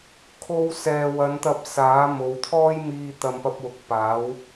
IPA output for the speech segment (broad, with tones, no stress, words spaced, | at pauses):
kʰo˧wsɛː˨wɐ˨˧nt̪ɐ˧p̚ saː˨˥ mo˨˧w t̪ʰɔː˥jmiː˧ t̪ɐ˧mpɐ˧p̚wʊ˨˥k̚ paː˨˥w